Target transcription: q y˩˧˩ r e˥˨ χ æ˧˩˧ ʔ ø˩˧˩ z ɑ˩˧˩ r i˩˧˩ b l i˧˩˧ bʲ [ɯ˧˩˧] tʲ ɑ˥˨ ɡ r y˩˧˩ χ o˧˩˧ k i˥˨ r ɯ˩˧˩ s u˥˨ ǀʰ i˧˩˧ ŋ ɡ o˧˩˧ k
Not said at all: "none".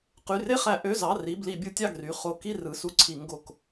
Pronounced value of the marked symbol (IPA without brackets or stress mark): ɯ˧˩˧